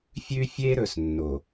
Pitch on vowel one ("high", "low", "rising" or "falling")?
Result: high